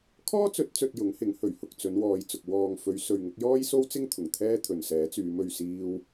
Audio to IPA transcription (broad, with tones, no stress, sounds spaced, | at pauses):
kʰ ɔː˥ t͡s ɵ˨˥ t̚ t͡s ɵ˨ t̚ j ʊ˨˥ ŋ h ɪ˨˥ ŋ h ɵ˨˩ ɥ h ʊ˨ k̚ t͡s ɵ˨˧ n w ɔː˨ j t͡s ʊ˨ k̚ w ɔː˨ ŋ f ɵ˨˧ ɥ s ɵ˨ ɥ ŋ ʊ˨˥ k̚ j ɔː˥ j s o˥ w t͡s ɪ˥ ŋ t̪ʰ ʊ˨˩ ŋ t̪ʰ ɛː˥ t̪ʰ ɵ˨ n s ɛː˨˥ t͡s yː˨˧ m ɵ˧ ɥ s iː˥ w